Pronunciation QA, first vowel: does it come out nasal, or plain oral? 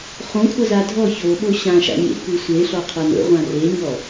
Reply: nasal